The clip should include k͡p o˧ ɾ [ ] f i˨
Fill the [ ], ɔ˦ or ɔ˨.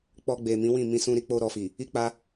ɔ˨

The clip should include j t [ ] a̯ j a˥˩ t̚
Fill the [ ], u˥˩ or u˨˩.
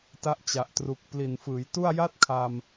u˥˩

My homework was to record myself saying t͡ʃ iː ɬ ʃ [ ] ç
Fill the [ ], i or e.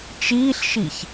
i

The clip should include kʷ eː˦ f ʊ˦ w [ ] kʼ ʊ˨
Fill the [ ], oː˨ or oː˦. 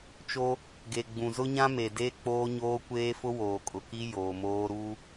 oː˨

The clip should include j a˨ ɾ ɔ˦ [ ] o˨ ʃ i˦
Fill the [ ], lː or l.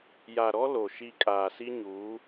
l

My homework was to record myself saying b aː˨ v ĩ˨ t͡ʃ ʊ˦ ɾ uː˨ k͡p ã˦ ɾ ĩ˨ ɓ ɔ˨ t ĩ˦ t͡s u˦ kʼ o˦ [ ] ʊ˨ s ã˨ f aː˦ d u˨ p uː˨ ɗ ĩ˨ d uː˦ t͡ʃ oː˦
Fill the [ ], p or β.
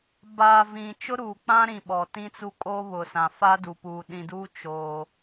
β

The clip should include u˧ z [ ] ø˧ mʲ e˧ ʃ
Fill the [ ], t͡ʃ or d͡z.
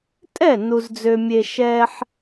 d͡z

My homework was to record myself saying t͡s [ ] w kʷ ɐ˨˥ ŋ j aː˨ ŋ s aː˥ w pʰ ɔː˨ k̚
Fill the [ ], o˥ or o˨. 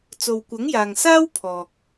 o˨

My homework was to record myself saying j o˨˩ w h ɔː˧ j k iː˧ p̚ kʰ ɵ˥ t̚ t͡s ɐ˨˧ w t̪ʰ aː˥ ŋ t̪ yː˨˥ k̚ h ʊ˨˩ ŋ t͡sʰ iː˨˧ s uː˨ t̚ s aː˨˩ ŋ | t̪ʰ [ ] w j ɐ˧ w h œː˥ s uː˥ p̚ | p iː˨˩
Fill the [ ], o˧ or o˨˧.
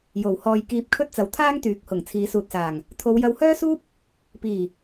o˨˧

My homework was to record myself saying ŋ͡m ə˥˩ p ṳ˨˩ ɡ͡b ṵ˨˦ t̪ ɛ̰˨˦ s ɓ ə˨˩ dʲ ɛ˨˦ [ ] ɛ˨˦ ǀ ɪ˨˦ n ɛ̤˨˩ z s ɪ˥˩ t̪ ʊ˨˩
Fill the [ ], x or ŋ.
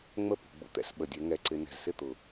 ŋ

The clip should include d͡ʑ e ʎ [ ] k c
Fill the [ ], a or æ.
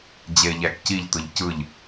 æ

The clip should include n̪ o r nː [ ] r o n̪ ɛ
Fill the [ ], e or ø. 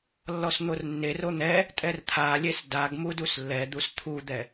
e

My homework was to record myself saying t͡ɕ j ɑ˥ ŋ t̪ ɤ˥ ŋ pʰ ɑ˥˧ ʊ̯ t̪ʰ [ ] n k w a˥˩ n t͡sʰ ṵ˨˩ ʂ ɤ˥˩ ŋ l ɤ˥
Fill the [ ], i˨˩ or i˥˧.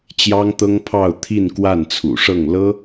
i˥˧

